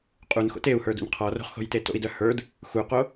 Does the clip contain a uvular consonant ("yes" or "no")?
yes